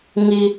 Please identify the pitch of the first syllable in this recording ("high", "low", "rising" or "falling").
high